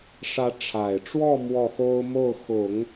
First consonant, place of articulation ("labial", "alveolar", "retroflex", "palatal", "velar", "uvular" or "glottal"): retroflex